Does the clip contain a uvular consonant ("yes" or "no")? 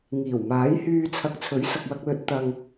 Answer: no